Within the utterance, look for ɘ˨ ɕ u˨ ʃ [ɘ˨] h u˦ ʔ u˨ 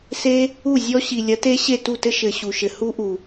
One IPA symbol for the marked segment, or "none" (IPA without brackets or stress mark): ɘ˨